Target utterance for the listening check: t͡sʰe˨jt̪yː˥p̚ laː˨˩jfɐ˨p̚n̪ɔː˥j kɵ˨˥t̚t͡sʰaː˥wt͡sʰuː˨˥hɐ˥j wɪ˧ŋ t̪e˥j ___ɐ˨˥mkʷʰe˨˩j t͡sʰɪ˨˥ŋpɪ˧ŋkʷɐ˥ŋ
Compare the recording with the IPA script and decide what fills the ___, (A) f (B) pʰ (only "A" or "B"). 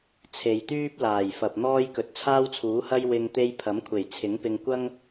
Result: B